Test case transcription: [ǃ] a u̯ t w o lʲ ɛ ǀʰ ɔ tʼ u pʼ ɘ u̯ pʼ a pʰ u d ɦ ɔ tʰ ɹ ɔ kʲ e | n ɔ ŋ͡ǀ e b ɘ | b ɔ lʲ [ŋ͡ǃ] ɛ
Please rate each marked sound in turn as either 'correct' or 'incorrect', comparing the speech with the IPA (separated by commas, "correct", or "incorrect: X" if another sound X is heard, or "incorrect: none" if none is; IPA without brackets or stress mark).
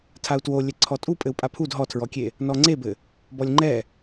incorrect: tʰ, correct